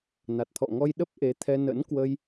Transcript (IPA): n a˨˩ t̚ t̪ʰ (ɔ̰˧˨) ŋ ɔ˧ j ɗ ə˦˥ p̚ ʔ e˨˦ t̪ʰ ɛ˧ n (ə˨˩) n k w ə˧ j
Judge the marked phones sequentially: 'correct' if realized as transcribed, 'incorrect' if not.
correct, incorrect: ə̰˧˥

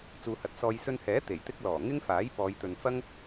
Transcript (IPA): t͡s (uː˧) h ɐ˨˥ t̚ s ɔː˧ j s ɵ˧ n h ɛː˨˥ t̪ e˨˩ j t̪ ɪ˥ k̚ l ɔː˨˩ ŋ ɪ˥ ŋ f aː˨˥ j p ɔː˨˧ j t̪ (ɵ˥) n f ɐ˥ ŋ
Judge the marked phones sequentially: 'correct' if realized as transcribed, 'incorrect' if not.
incorrect: uː˨, incorrect: ɵ˨

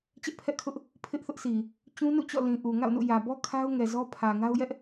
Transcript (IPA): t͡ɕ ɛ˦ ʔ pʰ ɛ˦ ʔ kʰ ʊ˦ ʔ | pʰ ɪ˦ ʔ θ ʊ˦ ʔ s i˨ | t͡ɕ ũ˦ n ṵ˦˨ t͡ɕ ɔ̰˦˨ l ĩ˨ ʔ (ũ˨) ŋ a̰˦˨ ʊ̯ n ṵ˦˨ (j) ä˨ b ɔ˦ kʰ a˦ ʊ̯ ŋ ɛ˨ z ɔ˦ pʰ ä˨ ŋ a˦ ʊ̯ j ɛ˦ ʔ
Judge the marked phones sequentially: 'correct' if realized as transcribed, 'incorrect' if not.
incorrect: u˨, correct

